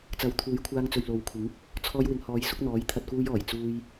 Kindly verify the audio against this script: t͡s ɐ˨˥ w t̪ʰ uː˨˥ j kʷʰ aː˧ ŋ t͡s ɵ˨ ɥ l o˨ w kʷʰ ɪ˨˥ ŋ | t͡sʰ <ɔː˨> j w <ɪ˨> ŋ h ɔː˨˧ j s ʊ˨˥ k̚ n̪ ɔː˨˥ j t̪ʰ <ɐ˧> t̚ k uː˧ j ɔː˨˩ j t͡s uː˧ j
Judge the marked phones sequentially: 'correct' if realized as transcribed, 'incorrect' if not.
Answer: incorrect, correct, correct

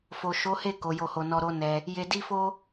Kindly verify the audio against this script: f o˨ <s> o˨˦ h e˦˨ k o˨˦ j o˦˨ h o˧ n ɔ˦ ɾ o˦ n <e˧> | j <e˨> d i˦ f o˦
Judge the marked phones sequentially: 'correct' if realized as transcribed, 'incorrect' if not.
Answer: incorrect, incorrect, incorrect

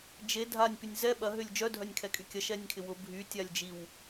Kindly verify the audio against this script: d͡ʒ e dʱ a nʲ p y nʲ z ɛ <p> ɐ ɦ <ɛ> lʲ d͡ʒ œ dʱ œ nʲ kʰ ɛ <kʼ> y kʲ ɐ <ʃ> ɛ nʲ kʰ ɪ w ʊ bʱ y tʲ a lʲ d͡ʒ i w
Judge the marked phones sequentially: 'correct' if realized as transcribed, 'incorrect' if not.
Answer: incorrect, incorrect, correct, correct

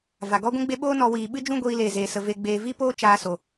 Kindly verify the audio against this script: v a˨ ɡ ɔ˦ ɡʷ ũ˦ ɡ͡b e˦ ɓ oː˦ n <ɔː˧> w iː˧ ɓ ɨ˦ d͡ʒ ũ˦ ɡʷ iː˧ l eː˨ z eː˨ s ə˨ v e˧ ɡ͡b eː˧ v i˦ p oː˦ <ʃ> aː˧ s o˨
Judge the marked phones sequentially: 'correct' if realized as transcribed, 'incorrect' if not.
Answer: incorrect, incorrect

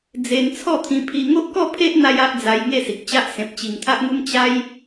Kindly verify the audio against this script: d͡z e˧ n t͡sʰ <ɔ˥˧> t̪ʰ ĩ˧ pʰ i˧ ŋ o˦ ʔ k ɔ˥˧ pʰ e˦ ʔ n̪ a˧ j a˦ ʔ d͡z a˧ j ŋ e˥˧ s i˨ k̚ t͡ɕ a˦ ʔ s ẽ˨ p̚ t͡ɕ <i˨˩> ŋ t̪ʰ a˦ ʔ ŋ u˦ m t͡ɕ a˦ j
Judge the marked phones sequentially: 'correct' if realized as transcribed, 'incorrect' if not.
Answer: correct, correct

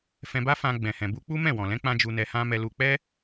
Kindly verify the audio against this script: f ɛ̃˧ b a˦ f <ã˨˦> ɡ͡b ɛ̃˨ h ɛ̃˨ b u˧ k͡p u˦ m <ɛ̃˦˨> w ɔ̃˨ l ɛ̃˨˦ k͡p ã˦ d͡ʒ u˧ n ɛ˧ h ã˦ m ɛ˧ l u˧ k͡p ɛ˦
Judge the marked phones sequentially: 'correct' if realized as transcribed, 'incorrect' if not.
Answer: incorrect, correct

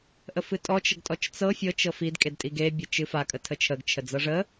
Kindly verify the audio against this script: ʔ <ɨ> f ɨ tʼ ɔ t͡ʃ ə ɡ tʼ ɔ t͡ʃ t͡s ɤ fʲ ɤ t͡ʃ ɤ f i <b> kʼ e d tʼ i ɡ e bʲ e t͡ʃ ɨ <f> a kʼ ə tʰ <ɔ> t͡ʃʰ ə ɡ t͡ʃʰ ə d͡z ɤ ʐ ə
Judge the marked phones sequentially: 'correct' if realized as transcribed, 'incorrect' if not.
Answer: incorrect, incorrect, correct, incorrect

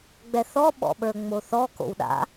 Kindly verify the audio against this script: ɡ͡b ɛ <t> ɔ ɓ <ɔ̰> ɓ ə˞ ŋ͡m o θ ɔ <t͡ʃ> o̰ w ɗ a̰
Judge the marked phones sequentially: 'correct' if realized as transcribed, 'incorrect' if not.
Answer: incorrect, correct, incorrect

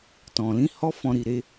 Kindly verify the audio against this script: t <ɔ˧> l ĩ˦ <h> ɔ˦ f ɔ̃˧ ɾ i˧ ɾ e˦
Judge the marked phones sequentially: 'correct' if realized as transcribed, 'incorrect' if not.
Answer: incorrect, correct

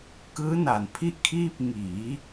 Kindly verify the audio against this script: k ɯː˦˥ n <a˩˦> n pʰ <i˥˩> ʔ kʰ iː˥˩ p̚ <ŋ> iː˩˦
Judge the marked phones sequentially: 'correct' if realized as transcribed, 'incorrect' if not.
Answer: correct, correct, correct

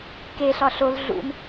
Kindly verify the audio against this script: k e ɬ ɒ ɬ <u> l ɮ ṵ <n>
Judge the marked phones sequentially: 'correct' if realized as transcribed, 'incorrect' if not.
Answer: incorrect, correct

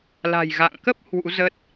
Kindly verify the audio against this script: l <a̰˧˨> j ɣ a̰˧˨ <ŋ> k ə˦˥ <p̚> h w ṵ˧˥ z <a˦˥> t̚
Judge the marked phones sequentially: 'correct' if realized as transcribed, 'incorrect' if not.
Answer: incorrect, correct, correct, incorrect

